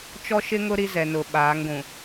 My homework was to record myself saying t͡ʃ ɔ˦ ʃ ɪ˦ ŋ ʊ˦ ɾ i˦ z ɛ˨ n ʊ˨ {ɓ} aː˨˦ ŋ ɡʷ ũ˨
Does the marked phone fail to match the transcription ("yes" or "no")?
no